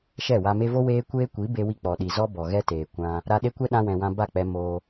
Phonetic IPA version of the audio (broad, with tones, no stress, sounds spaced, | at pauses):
ʃ ɛ˦˨ w a˧ m e˧ v o˦ w eː˦ kʷ eː˦ kʷ i˨˦ b e˧ w i˧ k͡p ɔ˨ ɗ i˨ z ɔ˦ b ɔ˨ ɣ ɛ˦ t eː˨ kʷ ã˧ | ɾ a˧ ɗ e˦ kʷ ɛ˦ ɗ ã˧ w ɛ̃˨ w ã˧ b a˦˨ k͡p ɛ˧ m oː˧